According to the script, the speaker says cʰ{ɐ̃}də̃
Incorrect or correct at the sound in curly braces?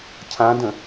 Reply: incorrect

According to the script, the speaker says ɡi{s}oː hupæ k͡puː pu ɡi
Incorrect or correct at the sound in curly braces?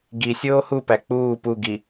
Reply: incorrect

